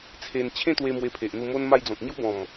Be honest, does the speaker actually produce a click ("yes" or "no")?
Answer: no